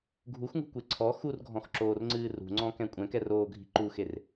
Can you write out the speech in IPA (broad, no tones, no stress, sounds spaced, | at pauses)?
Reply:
ɡʱ u x ŋ ṳ kʷ e ǀʰ ɔ x u r ɡʱ ɔ̃ x ǁ oː r ŋ͡ǀ ɨː r ṳ ŋ͡ǀ ɔ̃ k ɛ̃ kʷʼ ɛ̃ k ɛ r oː ɡʱ i̤ ǃ u x e r